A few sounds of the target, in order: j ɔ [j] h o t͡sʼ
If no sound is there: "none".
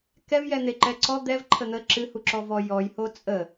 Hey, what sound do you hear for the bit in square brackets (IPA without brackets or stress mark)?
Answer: j